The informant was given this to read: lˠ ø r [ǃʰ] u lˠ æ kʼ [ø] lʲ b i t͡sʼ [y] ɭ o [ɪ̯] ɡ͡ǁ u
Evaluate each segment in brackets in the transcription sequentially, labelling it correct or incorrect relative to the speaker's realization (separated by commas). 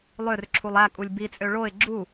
incorrect, incorrect, incorrect, correct